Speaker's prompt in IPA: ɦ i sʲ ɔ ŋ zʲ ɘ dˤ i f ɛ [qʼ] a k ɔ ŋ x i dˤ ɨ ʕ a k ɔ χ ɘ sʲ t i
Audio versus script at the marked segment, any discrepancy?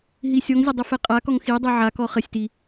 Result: no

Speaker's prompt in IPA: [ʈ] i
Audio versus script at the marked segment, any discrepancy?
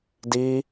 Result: yes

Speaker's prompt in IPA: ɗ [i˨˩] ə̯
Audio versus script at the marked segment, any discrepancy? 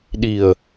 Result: no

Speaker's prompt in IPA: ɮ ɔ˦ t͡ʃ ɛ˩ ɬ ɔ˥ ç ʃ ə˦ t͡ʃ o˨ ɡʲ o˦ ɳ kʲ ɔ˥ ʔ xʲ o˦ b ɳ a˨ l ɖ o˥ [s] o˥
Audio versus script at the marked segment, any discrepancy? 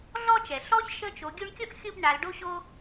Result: yes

